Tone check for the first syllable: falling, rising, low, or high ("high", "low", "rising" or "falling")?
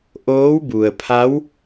rising